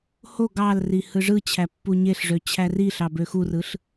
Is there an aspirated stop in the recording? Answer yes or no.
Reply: yes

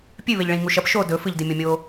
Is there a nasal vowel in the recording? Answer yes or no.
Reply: yes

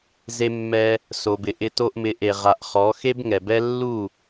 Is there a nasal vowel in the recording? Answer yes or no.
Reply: no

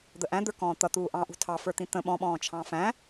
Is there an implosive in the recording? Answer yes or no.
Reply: yes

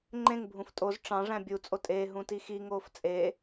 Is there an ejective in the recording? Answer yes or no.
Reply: yes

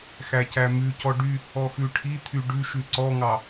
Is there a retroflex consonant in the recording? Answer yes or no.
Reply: yes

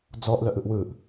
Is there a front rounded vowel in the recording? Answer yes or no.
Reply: yes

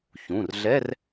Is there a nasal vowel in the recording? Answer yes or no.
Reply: yes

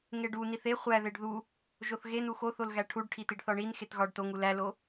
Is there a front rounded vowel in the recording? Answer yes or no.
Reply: no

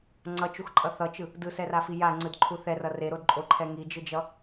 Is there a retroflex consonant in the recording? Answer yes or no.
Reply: no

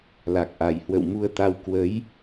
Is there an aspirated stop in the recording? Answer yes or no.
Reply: no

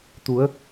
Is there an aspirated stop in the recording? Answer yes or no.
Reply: no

